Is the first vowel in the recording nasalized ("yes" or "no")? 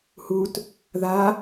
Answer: no